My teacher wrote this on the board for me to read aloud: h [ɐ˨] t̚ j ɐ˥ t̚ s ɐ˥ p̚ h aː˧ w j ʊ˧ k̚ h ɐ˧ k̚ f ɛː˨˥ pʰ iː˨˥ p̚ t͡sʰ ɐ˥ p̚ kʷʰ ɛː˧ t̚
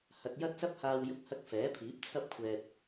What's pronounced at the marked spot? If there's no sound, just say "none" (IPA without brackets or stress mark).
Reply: ɐ˨